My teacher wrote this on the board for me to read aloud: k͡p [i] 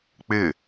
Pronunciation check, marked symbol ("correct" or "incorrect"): incorrect